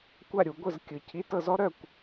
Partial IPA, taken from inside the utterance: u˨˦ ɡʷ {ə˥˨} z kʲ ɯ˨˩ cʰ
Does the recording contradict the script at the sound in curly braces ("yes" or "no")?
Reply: no